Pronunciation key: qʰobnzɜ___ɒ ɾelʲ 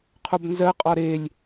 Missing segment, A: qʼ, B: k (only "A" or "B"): A